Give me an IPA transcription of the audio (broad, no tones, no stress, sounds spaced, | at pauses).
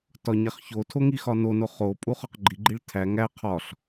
t ɒ ɲ æ χ ç o tʰ o ŋ i x ɒ n o n o χ o pʼ u χ ɒ q ɡ͡ǃ i ɡ͡ǃ i ɭ tʰ æ ŋ æ qʰ ɒ ɬ